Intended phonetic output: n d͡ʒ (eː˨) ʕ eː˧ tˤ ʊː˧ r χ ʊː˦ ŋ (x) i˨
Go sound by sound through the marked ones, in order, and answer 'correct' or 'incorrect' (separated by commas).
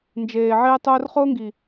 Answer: correct, incorrect